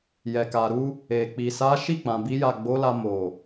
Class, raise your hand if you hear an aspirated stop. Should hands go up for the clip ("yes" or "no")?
no